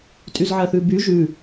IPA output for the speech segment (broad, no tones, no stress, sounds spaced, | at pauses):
tʼ y z ʕ ɜ θ ʉ b y ʒ ʉ